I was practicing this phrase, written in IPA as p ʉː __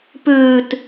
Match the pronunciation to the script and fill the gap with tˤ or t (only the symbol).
t